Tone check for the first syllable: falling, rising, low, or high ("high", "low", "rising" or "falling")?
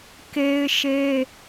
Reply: high